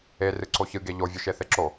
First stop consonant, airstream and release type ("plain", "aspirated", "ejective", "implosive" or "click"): click